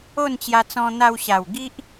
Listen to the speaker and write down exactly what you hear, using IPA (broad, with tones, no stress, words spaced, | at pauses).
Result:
o˥˧nt͡ɕja˧t͡sɔ̃˧ n̪a˧wɕa˨˩w ɡi˦ʔ